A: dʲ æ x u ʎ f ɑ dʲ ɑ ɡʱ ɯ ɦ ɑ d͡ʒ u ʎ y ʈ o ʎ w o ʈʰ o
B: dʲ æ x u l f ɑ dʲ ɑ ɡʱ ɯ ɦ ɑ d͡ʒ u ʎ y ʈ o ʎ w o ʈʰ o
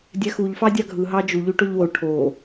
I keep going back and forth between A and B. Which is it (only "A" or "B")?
A